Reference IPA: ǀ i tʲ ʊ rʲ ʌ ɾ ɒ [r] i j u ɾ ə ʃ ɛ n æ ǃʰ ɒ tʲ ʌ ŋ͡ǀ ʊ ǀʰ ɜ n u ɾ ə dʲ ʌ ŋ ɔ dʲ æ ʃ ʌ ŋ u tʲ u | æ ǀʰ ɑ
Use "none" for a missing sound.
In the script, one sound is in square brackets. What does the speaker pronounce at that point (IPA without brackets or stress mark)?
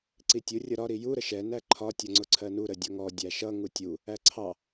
ɾ